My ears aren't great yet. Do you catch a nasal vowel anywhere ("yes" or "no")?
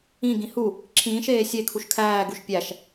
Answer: yes